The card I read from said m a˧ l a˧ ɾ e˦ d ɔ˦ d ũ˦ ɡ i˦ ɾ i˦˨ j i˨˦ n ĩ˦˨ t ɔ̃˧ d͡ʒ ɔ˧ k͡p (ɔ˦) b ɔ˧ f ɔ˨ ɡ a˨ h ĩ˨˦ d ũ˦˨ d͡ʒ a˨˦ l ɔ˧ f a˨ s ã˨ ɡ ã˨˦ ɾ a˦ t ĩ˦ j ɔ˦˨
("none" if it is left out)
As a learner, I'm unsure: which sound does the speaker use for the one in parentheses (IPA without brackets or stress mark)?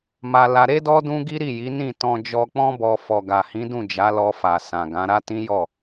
ɔ̃˦